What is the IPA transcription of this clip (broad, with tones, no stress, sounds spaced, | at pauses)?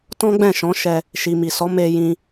t ɔ̃˦ ɡ͡b ɛ̃˦˨ ʃ ɔ̃˨˦ ʃ ɛ˧ | ʃ i˨ m i˨ s ɔ˨˦ m e˧ j ĩ˧